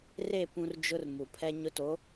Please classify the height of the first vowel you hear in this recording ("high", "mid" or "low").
mid